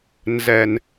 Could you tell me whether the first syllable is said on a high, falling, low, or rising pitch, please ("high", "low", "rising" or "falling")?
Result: low